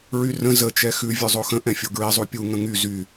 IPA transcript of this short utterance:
ɹyrə̃ zə t͡ʃɛxʉ vʲʉzˤoxə̃ ʔɛ̃fʲoɡɹi zˤupʲu ŋə̃ŋy zy

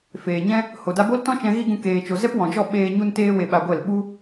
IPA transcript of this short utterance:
feː˨ɲɛ̃˦ | ho˨ da˧bo˦l tɔ̃˦t͡ʃɛ̃˧ ɣi˦ɡũ˧ keː˨t͡ʃo˨ zɛ˦pwɔ̃˨d͡ʒɔ˦˨ ɓeː˧ ɲu˧nteː˧ we˧ ɓa˧ɡʷɛ˦˨l ɓu˦

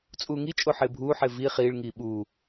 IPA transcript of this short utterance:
t͡sʼuːŋi t͡ʃʼoħɪːbʱuːħɪː vi χiːɭŋiː ɓuː

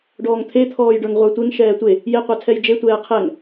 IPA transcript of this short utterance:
ɖɔːŋt̪ʰet̪ʰɔːjɖə˞ŋ ʁʷə˞tʷeŋ ʃɛːtʷe | jeqʷatʰɛj d͡ʒetʷɛː qʰɛŋ

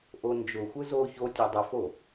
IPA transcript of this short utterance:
ʔond͡ʒʊxʷɯ zo çotʲ odˤʊfo

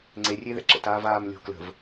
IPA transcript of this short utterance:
ŋ͡ǀerʲeðɛ̰ ǁə̰taːvaːm lʲo̤ klə̤v

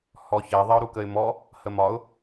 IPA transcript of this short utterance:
hɔçɛ ðˤɪʊ̯ɾukəɪ̯mɔ | həmɒʊ̯

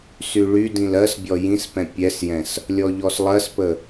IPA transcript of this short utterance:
syɭydĩl ɜsbʲɔ jĩspɛ̃ pʲɛsjɛ̃s | lʲɔʎɔslˠɜspə

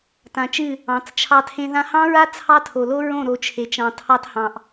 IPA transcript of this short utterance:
tã˨t͡ʃɨ˦˨ | ɑ̃˨˦t͡st͡ʃʰɑ˦tʰẽ˦ ðã˧hɑ̃˦ɹa˦ t͡sʰɑ˦tʰo˨lo˦ɹõ˦˨ ɾo˨ t͡ʃʰe˨t͡ʃɑ̃˨ tʰɑ˦thɑ̃˨ʔ

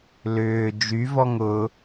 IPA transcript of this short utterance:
lʏː d͡ʒyvɔŋ ʊ

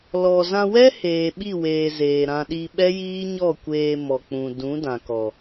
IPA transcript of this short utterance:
lɔ˨zã˧wɛ˦ heː˨ɓi˦˨weː˨ zeː˨ɾã˧ ɗi˧ɓɛ˦jiː˦ ɲɔ˦˨ kʷeː˧mɔ˨ k͡pũ˨dũ˨˦ dã˨kɔ˨

